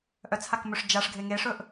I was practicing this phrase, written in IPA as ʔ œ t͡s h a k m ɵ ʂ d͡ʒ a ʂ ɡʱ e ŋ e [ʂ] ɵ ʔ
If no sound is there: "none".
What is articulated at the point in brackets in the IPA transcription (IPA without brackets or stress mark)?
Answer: ʂ